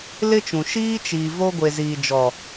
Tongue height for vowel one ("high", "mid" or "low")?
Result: high